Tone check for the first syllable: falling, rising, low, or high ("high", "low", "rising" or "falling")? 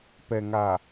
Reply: low